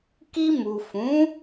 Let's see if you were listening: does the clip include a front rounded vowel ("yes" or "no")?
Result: no